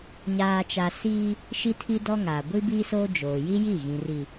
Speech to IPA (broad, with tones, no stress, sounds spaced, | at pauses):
ɲ aː˨ t͡ʃ a˨ s iː˦ | ʃ i˦ tʰ i˦ d ɔ˦ ŋ aː˨ ɡʷ i˦ b iː˦ s oː˦ d͡ʒ oː˨ j i˦ j i˦˨ ɣ ĩ˨ r i˨